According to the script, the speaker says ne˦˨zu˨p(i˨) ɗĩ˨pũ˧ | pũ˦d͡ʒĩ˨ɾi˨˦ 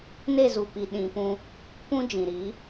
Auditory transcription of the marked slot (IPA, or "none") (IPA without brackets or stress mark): i˨